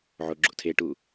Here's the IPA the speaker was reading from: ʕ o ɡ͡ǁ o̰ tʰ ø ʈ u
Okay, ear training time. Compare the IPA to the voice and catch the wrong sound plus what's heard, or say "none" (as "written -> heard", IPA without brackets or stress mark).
ø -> e